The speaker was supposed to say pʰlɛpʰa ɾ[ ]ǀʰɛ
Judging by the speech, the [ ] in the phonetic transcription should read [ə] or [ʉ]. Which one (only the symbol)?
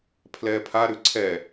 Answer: ʉ